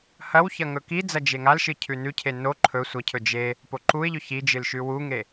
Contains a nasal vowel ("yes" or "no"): no